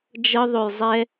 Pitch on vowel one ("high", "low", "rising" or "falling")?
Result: high